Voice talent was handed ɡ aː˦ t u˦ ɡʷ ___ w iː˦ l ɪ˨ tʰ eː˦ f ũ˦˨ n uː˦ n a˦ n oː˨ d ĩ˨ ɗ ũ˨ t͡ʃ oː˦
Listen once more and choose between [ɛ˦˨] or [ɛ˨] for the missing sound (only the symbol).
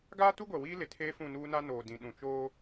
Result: ɛ˨